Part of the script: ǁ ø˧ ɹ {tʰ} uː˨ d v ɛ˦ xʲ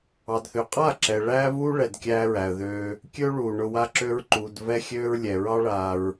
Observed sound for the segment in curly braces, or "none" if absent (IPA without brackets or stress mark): ǃ